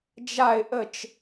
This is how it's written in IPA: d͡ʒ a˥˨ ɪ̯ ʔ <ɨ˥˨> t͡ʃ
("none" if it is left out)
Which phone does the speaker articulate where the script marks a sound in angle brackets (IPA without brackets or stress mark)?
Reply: ə˥˨